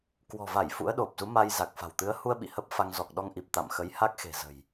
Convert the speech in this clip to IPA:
k w ɔ̤˨˩ v a˧˩ j f ṵ˧˥ ə̯ ɗ o˨˩ p̚ z u˨˦ m a˧ j z a˨˩ k̚ f a̤˨˩ w t̪ ɨ˨˦ ə̯ h u˧ ə̯ ɓ ḭ˧˨ h ə˦˥ p̚ f a˧ ŋ z ɔ˨˩ k̚ ɗ ɔ˧ ŋ ʔ i˨˩ p̚ t̪ a̰˧˨ m x ə˨˦ j h a˦˥ k̚ x e̤˨˩ z ə̤˨˩ j

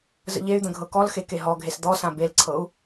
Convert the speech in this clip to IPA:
z ə̰ ʎ e y̯ d̪ ə̃ ɡʱ ɤ k ɔ l x e k e ɦ ɔ ɡʱ e s d̪ ɔ s ã b e l ǀʰ ɤ u̯

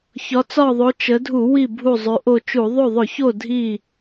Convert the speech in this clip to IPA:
ç ɒ˩˧ t͡s ɒ˧˩ ðˤ o˩˧ t͡ʃ ə˩˧ dʱ u˧˩˧ w i˧˩ bʱ u˧˩ zˤ ʉ˩˧ ʔ o˧˩ t͡ʃ u˧˩˧ ðˤ o˧˩ ðˤ ʊ˧˩˧ ç o˧˩ dʱ i˧˩

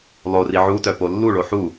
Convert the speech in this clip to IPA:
lˠ o r i ʕ u t œ p o lː u ɭ o ħ u

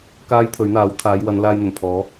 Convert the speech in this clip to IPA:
k aː˥ j t̪ʰ ɵ˨˥ ɥ n̪ aː˨˥ w t̪ʰ aː˨˧ j w ɐ˨˧ n l aː˧ j n̪ ɵ˨˩ n pʰ ɔː˨˥

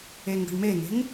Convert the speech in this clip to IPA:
e ŋ ɡ ə̤ ɳ m e ŋ e̤ ŋ

